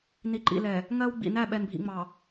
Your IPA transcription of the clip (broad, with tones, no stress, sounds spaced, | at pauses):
n i˨ ǃ ḭ˨ l ɛ˨ | ŋ ɜ˦ w ɡ͡b ḭ˨ n æ˦˨ ɓ ɛ˨ n bʱ ḭ˨ ŋ͡m ɑ˨